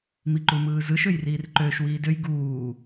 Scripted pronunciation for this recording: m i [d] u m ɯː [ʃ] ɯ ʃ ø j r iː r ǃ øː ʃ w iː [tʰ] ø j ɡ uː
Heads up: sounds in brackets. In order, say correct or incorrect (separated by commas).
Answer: incorrect, incorrect, incorrect